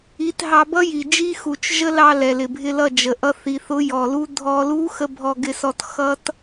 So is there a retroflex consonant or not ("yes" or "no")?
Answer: no